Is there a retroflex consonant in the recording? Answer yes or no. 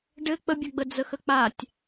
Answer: yes